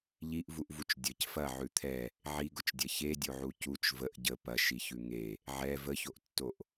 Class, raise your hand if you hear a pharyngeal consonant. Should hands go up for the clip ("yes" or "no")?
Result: yes